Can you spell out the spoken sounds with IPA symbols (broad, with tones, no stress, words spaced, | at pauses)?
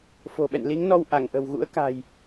fo̤˨˩ ɓɛ̰˧˨nli˨˦ŋnɔ˧w ʔa˧˩ŋʔə̤˨˩wɣṵ˧˥ə̯ ka̤˨˩j